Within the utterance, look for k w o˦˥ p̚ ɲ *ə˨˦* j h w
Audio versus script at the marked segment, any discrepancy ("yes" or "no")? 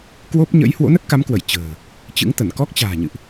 yes